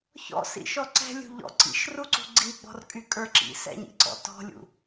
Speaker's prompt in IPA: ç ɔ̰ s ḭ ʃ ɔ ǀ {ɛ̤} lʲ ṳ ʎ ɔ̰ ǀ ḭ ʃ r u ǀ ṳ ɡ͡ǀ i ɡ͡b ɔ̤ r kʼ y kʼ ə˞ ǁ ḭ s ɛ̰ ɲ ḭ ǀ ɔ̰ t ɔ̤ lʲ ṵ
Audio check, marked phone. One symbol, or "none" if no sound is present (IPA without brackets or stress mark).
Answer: ɛ̤